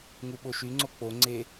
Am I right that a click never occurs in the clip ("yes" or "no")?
no